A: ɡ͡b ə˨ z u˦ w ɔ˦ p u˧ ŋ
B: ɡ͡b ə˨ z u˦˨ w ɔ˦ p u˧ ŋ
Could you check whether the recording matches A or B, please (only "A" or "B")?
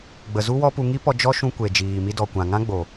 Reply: A